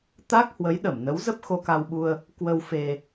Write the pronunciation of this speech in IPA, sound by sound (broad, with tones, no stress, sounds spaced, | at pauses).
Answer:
t̪ a˦˥ k̚ h w ə˨˦ j ɗ ə˧˩ m n ə˨˦ w z ə˦˥ p̚ x o˧ k a˧ w ɓ u˧ ə̯ | k w ə˧ w f e˧